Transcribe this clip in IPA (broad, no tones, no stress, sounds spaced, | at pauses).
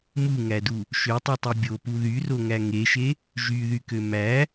m u ŋ æ d u | ʃ ø tˤ u tˤ e bʲ o p u ð y r o ŋ æ ŋ e ʃ e | ʒ y ð y k ø m æ